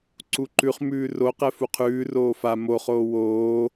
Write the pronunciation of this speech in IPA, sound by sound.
ǀ u ǃ ʉ χ m ʉː r o q ɛ f u qʰ ʉː r oː f a m o χ oː w oː

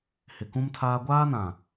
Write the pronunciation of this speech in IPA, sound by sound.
h ɪ˨ k ũ˦ m tʰ aː˦ ɡʷ aː˦ n ã˨

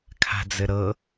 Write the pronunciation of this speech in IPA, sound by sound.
kʰ a̤ d͡z ɘ ɾ ɤ

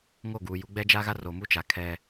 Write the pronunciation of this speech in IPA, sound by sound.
ŋ o˦˨ ɡ uː˨ j u˨˦ ɡ͡b ɛ˦ d͡ʒ a˦ ɣ a˦ r o˨ m u˦ t͡ʃ a˨ kʰ ɛ˦

